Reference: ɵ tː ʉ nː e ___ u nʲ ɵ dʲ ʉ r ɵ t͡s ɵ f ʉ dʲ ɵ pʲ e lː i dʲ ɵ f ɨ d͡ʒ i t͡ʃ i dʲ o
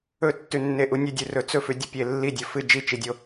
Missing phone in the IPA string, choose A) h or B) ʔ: B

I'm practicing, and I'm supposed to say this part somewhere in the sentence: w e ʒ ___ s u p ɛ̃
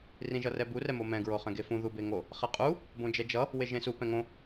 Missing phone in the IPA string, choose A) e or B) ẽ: B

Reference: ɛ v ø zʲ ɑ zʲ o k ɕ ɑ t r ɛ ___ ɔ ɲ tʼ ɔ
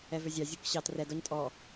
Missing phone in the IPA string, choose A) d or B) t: A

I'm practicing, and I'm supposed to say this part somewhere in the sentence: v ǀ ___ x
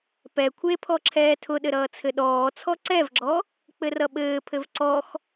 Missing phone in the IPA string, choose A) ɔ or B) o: A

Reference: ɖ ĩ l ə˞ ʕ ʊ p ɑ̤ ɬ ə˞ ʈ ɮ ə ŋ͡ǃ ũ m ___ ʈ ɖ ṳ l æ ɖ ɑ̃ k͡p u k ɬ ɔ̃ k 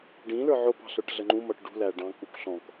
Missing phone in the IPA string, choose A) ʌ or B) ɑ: A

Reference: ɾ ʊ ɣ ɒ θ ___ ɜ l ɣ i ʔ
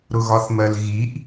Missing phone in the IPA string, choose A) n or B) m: B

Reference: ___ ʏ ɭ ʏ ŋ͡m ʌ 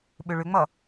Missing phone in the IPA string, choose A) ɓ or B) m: A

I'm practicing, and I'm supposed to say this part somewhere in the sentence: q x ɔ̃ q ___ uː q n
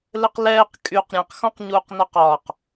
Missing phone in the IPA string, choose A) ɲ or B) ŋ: A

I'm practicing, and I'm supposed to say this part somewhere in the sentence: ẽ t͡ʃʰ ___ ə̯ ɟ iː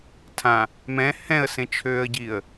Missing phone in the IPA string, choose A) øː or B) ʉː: A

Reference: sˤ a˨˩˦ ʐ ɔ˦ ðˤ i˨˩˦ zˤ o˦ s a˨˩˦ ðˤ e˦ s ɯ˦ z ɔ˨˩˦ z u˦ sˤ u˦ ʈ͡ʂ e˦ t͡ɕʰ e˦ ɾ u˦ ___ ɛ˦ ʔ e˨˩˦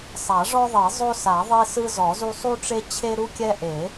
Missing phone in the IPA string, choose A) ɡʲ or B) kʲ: B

